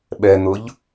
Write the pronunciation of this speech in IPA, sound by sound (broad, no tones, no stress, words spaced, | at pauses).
ɓɛn̪ʊʎ